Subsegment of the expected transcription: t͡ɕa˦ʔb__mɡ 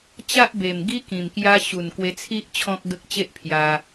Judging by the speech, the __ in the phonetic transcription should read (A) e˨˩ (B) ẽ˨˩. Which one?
A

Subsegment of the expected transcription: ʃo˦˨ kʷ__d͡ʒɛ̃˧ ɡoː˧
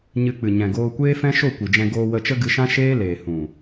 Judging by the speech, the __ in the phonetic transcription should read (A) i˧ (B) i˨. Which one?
B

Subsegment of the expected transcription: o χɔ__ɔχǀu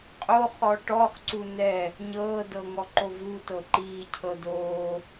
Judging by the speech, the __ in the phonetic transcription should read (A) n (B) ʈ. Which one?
B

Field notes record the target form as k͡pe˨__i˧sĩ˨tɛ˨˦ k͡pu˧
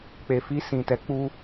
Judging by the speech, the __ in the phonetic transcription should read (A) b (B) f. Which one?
B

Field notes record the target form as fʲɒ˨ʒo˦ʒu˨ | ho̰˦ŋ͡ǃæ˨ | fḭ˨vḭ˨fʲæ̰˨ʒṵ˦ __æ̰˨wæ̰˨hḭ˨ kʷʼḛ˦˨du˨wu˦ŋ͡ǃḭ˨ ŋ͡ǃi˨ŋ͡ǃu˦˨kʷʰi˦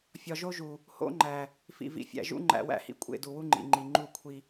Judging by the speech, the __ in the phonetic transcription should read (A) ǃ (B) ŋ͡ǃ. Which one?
B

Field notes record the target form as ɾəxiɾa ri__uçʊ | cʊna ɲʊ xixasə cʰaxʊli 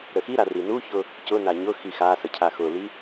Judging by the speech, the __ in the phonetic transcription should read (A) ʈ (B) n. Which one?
B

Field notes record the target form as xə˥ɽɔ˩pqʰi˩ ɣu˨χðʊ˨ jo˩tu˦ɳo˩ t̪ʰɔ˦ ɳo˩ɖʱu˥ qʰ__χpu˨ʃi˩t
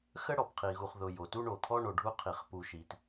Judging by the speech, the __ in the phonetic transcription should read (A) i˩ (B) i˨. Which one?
A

